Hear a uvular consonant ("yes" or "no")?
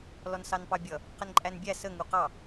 yes